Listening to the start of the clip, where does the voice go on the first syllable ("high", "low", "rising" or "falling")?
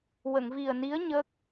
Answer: low